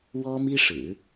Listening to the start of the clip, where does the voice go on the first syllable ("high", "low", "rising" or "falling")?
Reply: high